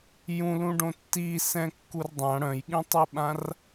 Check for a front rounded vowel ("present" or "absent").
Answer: present